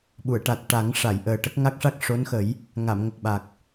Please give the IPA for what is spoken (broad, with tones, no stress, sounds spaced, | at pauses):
ɓ u˨˩˨ ə̯ ʈ a˨˩ t̚ ʈ a˨˩˦ ŋ ʂ a˨˩˨ j ʔ əː˨˩ ʈ ə˦˥ k̚ ŋ a˦˥ k̚ ʂ a˦˥ k̚ ʂ o˧˥ n x ə˨˩˦ j | ŋ a˨˩˨ m ŋ ə˨˩ k̚ ɓ a˨˩ k̚